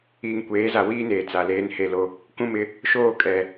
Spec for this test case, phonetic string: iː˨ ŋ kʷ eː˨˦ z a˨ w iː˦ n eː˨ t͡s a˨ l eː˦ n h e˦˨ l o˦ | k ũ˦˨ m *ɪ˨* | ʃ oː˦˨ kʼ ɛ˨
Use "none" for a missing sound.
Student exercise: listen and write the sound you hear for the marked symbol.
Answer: ɪ˦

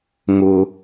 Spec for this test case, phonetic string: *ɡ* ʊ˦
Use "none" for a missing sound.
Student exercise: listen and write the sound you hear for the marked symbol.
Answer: ŋ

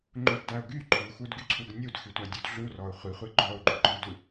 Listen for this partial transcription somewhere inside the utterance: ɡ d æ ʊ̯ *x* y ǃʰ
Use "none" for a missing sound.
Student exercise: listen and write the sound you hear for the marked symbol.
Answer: ɡ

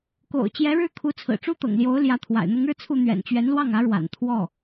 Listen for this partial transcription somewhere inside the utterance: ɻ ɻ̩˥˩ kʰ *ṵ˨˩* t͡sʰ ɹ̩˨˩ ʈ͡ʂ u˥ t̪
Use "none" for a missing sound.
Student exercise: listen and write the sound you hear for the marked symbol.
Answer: u˧˥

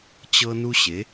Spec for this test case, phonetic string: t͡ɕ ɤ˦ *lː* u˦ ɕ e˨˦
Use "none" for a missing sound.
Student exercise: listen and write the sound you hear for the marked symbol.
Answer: n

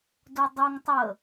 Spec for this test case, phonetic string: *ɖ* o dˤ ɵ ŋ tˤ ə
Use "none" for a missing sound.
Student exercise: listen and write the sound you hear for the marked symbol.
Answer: d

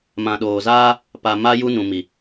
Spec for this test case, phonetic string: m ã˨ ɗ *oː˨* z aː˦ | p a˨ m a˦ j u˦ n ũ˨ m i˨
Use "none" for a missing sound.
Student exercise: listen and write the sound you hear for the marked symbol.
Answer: oː˨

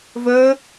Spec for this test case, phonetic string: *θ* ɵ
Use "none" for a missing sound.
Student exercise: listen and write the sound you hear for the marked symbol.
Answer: v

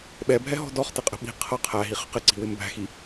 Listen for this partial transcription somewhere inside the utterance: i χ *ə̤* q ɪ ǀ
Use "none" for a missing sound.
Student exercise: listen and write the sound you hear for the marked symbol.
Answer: ə̤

